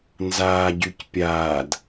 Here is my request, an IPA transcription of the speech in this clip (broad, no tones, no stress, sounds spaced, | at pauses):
n z aː ɟ y c pʲ aː d